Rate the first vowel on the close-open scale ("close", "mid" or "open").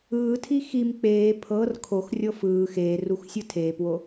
close